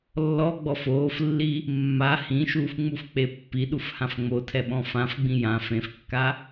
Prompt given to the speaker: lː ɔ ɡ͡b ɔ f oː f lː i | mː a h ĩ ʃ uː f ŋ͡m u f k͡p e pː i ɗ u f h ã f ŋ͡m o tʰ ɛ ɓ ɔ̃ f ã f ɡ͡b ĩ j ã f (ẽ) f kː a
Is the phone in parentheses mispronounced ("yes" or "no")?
no